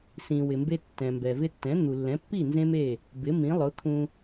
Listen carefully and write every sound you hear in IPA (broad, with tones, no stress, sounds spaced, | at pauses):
s ĩ˩ w ɪ˩ m b e˧ tː ɛ̃˩ m b ɛ˩ v ɪ˧ tː ɛ̃˩˥ n̪ u˩ lː ɛ̃˩˥ pː i˥˩ n z ẽ˥ m e˥˩ | b ɪ˩˥ m ĩ˩˥ lˠ ʊ˩˥ t̪ʰ ũ˧